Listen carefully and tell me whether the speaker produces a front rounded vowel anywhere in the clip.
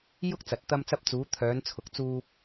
yes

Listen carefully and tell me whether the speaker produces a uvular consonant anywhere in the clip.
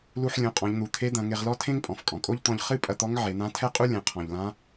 yes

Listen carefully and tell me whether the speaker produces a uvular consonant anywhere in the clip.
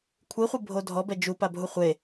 yes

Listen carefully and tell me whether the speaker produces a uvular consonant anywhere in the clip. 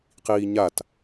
yes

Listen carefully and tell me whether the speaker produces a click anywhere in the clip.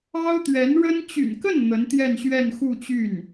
no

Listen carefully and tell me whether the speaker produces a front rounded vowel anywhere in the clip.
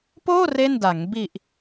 no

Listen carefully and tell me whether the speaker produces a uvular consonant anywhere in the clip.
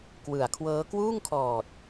no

